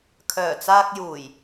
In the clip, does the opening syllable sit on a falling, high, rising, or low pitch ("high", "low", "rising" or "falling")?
low